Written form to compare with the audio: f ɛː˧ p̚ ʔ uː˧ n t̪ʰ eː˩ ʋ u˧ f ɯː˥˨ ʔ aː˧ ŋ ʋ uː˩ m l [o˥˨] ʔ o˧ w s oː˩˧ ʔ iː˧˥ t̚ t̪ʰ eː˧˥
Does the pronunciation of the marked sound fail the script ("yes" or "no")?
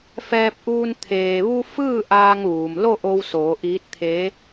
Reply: no